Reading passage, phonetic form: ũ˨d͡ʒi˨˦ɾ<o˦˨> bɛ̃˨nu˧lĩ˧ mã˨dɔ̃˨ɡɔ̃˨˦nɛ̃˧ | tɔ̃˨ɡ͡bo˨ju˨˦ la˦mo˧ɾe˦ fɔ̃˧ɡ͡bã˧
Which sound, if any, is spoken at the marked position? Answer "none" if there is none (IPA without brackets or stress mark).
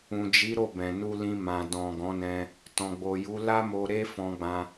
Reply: o˦˨